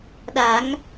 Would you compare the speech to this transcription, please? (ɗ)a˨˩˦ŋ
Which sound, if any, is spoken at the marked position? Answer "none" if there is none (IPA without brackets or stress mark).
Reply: ɗ